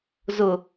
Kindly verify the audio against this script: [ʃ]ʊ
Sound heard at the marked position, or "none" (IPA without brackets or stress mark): z